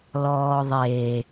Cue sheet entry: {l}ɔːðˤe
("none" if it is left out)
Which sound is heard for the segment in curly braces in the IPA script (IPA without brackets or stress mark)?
l